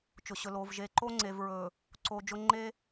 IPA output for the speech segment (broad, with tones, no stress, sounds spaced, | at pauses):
t͡ʃ ʊ˨ ɕ ɵ˨ l oː˨ v ʒ e˨ ǃ o˦ ŋ͡ǀ e˨ v ɹ ɵː˨ | ǀ oː˨ d͡ʒ ʊ˦ ŋ͡ǃ e˦